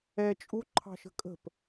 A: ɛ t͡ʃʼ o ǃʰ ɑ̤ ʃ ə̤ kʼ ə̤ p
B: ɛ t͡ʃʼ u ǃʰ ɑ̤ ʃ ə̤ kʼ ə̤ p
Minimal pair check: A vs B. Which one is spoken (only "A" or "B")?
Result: B